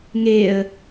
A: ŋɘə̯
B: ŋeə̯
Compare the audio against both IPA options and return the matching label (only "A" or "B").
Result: B